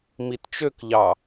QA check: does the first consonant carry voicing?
yes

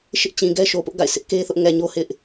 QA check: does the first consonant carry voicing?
no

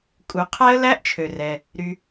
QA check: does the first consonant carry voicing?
no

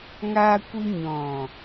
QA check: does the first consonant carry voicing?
yes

